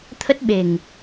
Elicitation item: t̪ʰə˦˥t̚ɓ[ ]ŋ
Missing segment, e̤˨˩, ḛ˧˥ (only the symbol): e̤˨˩